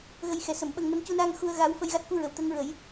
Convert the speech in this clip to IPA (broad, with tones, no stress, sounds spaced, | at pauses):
ɣ ə˧ j x ɛ˨˩ s ə˨˩˨ m ɓ ə˧ ŋ n ə˧˥ m c u˧ n aː˧ ŋ x u˧ ə̯ ɣ a˧˥ w f ə˧ j ɣ a˦˥ t̚ k u˧ ɹ ə˨˩˨ w t̪ əː˧˥ ŋ ɹ ə˨˩˦ j